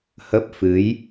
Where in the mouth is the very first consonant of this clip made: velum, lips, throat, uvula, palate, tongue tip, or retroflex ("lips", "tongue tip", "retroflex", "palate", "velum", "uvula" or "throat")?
throat